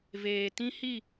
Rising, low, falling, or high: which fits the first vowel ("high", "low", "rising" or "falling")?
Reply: low